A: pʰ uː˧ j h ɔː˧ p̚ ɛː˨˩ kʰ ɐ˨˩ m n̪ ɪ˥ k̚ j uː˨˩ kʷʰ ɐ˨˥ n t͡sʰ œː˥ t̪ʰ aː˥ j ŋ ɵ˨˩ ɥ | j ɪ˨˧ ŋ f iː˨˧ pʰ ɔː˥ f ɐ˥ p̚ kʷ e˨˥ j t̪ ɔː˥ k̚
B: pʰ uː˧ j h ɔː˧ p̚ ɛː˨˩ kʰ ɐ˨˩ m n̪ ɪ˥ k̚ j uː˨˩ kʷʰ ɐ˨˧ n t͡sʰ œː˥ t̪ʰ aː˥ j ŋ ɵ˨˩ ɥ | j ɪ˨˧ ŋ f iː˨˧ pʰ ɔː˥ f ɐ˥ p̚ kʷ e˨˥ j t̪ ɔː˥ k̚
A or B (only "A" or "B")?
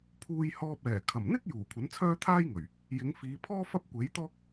A